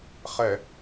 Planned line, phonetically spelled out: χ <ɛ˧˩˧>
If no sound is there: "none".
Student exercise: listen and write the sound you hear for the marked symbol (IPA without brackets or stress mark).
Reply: ɛ˧˩˧